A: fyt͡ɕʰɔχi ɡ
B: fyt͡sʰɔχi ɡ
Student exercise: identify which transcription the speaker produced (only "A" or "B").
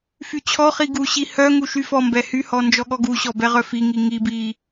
A